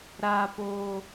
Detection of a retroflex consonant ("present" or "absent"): absent